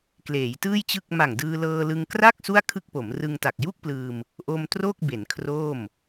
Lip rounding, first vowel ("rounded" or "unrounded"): unrounded